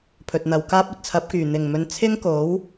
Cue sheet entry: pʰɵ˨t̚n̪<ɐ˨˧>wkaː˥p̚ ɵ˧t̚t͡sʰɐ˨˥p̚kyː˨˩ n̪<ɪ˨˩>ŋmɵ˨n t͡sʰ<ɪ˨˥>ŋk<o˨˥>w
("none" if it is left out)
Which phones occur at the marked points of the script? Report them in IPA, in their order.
ɐ˨˧, ɪ˨˩, ɪ˥, o˨˥

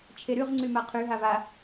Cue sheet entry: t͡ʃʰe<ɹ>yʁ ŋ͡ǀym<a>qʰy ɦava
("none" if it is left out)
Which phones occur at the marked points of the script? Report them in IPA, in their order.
ɾ, a

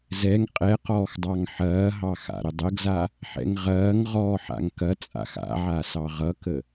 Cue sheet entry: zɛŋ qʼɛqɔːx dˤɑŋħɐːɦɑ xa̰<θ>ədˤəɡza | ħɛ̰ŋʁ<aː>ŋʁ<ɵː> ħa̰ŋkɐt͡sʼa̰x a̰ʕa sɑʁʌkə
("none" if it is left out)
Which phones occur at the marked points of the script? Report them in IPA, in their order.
ɾ, ɐː, ɔː

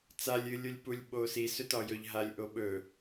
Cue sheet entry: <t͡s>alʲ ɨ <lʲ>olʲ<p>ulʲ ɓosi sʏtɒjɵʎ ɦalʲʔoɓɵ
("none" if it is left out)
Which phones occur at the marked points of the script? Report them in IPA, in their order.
t͡s, lʲ, p

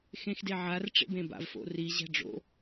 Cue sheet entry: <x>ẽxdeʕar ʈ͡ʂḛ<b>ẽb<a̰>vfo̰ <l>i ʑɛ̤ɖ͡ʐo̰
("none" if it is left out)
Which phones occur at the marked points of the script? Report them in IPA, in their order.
x, b, a̰, r

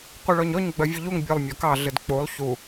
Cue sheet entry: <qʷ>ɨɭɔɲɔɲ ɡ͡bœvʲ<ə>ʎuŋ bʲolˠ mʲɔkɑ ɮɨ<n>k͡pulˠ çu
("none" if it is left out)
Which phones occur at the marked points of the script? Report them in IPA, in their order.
qʷ, ə, d

